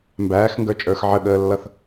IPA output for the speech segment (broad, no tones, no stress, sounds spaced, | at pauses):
m b æː x ŋ ɡ ə˞ t͡ʃʼ ə˞ x ʕ ə ɠ əː lː ʌ θ